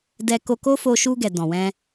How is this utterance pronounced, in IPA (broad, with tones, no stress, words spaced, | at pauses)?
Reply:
dɛ˧ ko˧ko˦ fo˧ʃu˧ɡɛ˨ dɔ̃˨wɛ̃˧